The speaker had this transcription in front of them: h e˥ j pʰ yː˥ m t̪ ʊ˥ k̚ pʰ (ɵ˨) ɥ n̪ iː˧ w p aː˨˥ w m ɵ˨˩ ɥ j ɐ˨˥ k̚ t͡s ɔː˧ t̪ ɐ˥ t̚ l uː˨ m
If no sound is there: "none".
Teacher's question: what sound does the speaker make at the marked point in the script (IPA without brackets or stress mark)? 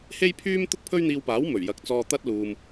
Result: ɵ˥